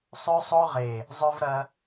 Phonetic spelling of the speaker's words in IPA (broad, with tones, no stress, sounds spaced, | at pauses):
sˤ ø˧ sˤ o˧ ʁ e˨˩ | zˤ ø˧ v ɾ ɐ˧